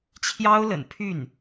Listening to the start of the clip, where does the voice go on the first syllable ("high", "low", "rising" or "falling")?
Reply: high